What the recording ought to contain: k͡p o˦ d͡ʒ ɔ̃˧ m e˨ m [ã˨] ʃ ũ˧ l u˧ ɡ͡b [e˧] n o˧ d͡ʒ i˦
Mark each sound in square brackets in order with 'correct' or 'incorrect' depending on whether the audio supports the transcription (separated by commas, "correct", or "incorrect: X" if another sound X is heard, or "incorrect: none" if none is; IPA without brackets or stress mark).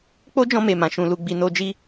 correct, incorrect: i˧